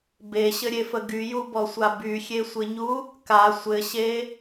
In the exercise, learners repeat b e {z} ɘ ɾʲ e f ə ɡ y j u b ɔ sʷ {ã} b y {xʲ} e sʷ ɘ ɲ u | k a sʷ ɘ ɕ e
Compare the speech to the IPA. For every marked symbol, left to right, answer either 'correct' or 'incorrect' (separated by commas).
incorrect, incorrect, correct